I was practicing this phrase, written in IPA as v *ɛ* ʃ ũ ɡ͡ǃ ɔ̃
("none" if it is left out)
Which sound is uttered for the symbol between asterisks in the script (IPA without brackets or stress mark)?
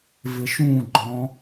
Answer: ɪ